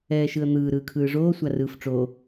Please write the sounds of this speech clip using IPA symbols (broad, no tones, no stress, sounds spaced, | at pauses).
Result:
ɛː ʃ ɯ ə̯ n̪ ɯː ɾ ɯː kʰ ɯː ʐ oː sʷ a r ɯː f ʈ͡ʂ o